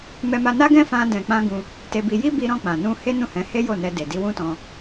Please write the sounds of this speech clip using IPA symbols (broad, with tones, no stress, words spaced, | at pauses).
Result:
mɛ˧ma˧ na˦ɡɛ̃˦fã˧ dɛ̃˨k͡pã˧ ɡũ˧ | te˧bi˧ ji˦bi˧ɾɔ̃˧ k͡pã˨ nũ˧ he˦nũ˦˨hɛ̃˨˦he˦ jo˦˨nɛ˧de˨ di˧wũ˦tɔ̃˧